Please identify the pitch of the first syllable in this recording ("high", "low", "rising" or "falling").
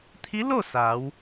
rising